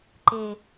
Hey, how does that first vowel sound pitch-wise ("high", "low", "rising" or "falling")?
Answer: low